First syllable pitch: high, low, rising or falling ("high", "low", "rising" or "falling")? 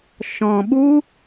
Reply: low